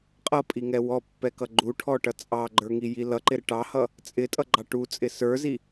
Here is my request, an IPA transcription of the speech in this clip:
qʼ ʌ pʼ i ŋ ɛ w ɔ pː ɛ k ʌ ɡ͡ǃ u ʈʰ ɔ ʈ ʌ t͡sʼ ɑ ɡ͡ǃ ə˞ ŋ i j i l ʌ ǃ ɪ ɾ ɪ ʈ ɑ h ʌ | t͡sʼ ɪ tʼ ʌ ɡ͡ǃ ɑ ʈ u t͡sʼ ɪ s ə˞ z i

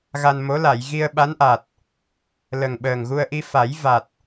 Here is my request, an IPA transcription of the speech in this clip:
ɣ a˧ n m o˧˥ l a˨˩˨ j ɣ i˧ ə̯ ɓ a˧˥ n ʔ a˨˩ t̚ | l ə˨˩ ŋ ɓ əː˨˩ ŋ ɣ u˧ ə̯ ʔ i˧ f a˨˩˦ j v a˨˩ t̚

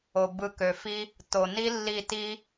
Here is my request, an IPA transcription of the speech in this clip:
o˨ b ɯ˧ k ø˨ f i˦ | t o˨ n i˦ lː i˦˨ t i˦

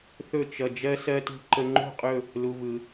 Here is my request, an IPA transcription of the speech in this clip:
θ ɵ˥˧ t͡ʃ ʌ˧ d͡ʒ ɜ˧ s ɜ˧ t ṳ˧ ǃ ə˧ ŋ͡ǃ ṳ˥˧ qʼ ɵ˥˧ | l u˧ v ɯ˧

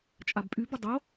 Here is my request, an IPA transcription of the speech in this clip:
t͡ʃʼ a b pʼ y b ə dˤ o

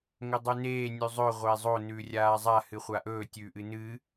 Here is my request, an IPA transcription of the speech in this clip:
ŋ ɵ dˤ ʉ n eː nʲ ʉ zˤ ɵ ʁʷ eː zˤ o n ʉː rʲ aː zˤ a h ɨ χʷ a ʔ ɵː tʲ ʉː ʔ ɨ n ɨː

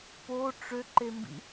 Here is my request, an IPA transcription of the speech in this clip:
p o ʈ͡ʂ ø ǃ e m b ḭ

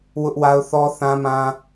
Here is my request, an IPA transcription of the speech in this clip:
w ʊ˦ ʔ w a˦ ʊ̯ θ ɔ˦ θ ã˦ m ã˦

